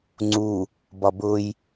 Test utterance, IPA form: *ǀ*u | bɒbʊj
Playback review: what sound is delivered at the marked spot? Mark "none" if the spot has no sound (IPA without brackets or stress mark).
ŋ͡ǀ